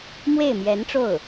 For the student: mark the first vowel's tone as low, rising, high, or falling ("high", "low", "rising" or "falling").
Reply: falling